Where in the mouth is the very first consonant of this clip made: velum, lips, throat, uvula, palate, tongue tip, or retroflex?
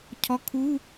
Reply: palate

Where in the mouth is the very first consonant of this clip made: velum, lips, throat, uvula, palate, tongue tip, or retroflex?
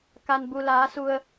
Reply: velum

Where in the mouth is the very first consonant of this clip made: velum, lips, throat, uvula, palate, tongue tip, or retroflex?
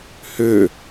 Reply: throat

